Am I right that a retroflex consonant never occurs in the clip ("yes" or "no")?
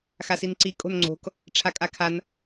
no